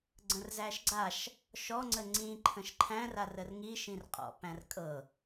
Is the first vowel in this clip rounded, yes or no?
no